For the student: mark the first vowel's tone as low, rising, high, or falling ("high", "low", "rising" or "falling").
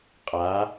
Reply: rising